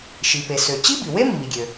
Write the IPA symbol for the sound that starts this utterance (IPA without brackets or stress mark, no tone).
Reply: ʃ